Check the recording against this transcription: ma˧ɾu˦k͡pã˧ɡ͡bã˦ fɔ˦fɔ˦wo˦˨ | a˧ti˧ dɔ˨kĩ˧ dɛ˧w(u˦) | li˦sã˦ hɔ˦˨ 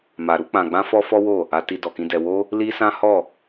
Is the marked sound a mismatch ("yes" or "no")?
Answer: yes